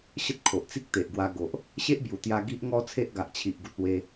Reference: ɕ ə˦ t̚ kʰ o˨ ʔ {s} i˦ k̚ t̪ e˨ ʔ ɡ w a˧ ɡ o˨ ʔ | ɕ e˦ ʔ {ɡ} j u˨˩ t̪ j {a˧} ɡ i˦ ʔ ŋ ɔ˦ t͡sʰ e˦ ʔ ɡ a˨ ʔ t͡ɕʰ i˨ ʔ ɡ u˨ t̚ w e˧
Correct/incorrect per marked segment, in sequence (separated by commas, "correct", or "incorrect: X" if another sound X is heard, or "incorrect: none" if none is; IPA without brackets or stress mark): incorrect: t͡s, incorrect: b, correct